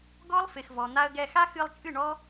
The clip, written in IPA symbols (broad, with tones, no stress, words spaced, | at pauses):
ɡɔ˦lˠ fɪ˨xvɔ˨n̪a˧ə̯ɡɛ˧ xa˦xɨ˧lˠt͡ʃʼɨ˦˨ɳɔ˦